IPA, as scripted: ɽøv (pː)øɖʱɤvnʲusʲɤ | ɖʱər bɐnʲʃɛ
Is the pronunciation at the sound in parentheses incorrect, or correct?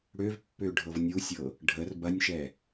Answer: correct